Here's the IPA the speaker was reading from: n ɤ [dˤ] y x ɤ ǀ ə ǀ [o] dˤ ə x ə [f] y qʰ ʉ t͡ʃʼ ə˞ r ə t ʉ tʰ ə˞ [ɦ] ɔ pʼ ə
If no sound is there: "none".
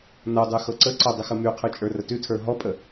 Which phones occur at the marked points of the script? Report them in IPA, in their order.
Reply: dˤ, ɤ, m, ɦ

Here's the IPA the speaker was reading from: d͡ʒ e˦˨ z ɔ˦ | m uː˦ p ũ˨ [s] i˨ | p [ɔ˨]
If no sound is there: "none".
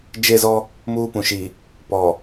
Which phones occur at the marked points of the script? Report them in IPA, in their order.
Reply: ʃ, ɔ˨

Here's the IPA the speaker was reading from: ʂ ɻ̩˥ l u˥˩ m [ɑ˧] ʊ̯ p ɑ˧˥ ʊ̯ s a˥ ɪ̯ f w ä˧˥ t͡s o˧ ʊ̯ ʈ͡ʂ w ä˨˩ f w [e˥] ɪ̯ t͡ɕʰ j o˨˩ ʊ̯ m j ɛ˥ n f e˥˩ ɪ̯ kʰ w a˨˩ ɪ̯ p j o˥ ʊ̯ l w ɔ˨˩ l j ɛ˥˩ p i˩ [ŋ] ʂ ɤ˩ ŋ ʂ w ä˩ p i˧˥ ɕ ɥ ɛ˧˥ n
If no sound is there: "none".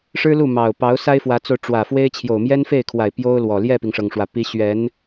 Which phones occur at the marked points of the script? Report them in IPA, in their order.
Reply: ɑ˨˩, e˥, ŋ

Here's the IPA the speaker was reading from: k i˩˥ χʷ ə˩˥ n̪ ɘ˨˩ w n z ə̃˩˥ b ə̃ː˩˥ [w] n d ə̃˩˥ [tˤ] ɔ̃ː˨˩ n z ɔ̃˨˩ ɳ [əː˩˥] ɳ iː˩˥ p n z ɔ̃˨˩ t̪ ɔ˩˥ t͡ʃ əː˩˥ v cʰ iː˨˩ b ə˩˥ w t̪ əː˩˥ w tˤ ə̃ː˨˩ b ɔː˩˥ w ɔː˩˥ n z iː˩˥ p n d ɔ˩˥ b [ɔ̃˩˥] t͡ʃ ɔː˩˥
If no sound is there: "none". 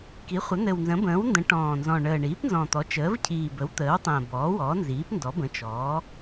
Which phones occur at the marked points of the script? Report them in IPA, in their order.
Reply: w, ʈ, əː˨˩, ə̃˩˥

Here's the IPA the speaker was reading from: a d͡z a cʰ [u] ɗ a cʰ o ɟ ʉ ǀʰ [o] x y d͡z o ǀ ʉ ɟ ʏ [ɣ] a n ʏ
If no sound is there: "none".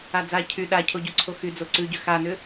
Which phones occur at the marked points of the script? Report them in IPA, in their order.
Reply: y, o, x

